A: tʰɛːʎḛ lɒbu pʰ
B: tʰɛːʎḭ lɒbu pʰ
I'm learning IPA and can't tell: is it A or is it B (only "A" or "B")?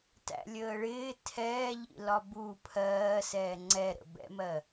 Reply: B